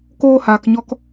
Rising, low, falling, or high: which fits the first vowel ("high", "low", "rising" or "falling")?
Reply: high